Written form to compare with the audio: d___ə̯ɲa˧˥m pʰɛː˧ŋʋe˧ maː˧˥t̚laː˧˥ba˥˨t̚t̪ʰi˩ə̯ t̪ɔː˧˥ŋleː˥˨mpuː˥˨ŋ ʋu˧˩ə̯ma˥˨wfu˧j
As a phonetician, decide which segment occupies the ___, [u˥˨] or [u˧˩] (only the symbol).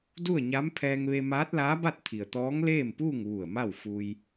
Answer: u˥˨